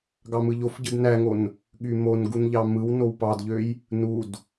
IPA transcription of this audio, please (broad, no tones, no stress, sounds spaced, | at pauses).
ɡ ɑ m ɯ ʎ o f ɟ ɯ d n æ ŋ o n | ɠ y m o n ɡ u n ʎ ɑ m ɯ w n o w p ɑ d ʎ ø j | n u d